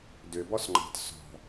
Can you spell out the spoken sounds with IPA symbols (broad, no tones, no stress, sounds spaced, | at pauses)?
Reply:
d ʏ b ɔ s ŋ͡ǃ ɑ̤ t s ɔ̤